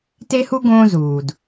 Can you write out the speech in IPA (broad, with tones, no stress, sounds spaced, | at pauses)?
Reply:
t e˥ h u˥ ɡ õː˥ z uː˩ d